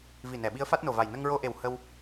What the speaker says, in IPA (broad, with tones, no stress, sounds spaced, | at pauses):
v i˨˩ n ɛ˨˩˨ ɓ i˧˥ ə̯ f a˦˥ t̚ n o˨˩ v a˨˩ j n ə˧ ŋ ɹ o˧ ʔ e˨˩ w h ə˧ w